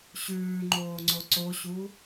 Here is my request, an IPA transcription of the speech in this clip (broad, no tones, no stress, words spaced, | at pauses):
ɕʉːŋ͡ǃoːŋ͡ǀo ǀoɕu